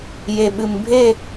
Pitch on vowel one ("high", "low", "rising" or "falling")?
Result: low